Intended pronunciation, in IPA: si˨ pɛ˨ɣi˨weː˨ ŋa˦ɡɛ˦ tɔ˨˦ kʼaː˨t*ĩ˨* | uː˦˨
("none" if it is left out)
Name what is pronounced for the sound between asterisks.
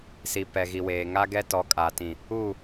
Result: ĩ˨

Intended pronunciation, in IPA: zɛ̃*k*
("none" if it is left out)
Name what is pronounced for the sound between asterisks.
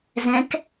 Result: k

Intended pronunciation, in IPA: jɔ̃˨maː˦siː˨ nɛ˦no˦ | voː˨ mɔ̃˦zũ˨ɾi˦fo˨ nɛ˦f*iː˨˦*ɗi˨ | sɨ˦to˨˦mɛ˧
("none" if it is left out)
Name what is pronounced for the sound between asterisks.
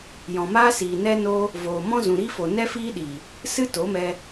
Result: iː˦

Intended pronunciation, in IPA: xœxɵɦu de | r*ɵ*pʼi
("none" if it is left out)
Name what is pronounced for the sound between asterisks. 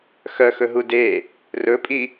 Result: ɵ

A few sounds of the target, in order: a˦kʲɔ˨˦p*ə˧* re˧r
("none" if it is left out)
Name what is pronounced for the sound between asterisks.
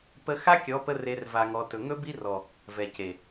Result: ə˧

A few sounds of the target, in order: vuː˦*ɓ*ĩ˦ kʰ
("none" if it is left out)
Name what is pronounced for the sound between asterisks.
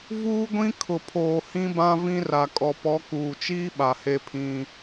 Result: ɡʷ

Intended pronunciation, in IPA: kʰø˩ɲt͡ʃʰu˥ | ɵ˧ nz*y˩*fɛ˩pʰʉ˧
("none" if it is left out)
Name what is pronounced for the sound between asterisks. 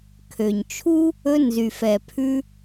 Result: y˩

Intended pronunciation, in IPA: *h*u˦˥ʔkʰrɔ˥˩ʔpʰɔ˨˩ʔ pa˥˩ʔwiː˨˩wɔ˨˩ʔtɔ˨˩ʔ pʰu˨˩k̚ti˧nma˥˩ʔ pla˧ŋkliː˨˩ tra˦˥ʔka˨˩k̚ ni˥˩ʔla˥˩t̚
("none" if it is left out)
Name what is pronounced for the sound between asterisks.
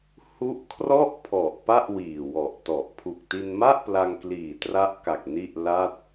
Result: h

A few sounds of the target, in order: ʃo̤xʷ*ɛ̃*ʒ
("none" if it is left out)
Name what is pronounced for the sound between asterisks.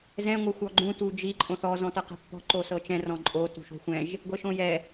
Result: ɛ̃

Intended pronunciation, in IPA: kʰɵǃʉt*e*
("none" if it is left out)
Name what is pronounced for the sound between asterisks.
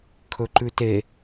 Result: e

